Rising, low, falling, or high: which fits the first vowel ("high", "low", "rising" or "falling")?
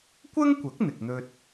high